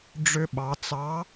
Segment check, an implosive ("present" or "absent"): present